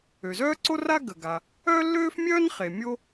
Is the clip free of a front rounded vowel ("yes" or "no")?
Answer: no